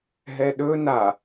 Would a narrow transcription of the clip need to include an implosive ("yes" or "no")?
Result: yes